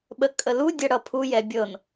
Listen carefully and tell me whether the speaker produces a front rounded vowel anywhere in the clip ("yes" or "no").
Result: no